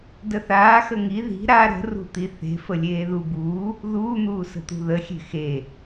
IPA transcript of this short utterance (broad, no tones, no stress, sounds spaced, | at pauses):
d ə θ aː x ə ŋ i ð i̤ ɾ a ɾ ə̤ r ṳ t̪ i θ e̤ f ə lʲ eː ð u b uː | ð uː n̪ uː s ə̤ t̪ ṳ ð ə xʲ e̤ x e